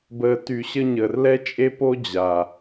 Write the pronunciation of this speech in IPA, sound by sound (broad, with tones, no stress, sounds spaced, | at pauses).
b əː˨ t y˨ ɕ ə˧ ɲ əː˨ r l ɛ˦ t͡ʃʼ e˦ p o˦ d͡ʑ a˨